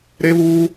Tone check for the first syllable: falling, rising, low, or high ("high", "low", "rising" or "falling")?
high